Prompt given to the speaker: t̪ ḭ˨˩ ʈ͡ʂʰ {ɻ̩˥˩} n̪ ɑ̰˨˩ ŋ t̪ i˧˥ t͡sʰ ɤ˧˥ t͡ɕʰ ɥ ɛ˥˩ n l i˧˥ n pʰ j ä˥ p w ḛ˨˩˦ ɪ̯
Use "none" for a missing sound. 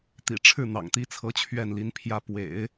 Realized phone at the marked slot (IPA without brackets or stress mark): ɻ̩˥˩